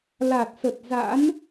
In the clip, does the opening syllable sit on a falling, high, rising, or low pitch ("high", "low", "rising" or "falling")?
low